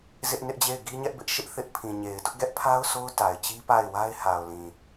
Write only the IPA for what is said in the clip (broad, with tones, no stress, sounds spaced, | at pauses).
z ɪ˦ ʔ n ɪ˦ ʔ d͡ʑ e˦˨ ɪ̯ ɡ i˦ ɲ ɛ˦ ʔ b ɪ˦ ʔ ʃ ɪ˦ ʔ θ ɪ˦ ʔ pʰ ĩ˨ ɲ e˨ ɪ̯ d ʊ˦ ʔ ɡ ɛ˦ ʔ pʰ a˦ ʊ̯ s o˦ ʊ̯ t a˨ ɪ̯ t͡ɕ i˦ p a˦˨ ɪ̯ w a˦ ɪ̯ h a˨ ʊ̯ l ĩ˨